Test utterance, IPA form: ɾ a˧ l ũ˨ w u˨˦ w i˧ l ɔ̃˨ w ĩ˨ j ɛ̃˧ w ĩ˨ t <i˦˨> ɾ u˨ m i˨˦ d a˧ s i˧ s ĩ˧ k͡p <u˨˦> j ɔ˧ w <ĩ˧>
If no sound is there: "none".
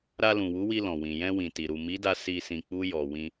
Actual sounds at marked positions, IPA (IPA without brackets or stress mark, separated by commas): i˨, u˦, ĩ˦